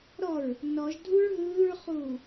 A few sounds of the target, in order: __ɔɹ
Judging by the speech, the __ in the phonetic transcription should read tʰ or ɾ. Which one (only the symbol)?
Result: ɾ